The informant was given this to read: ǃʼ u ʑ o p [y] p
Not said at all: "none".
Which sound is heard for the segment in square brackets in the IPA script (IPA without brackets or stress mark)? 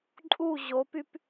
y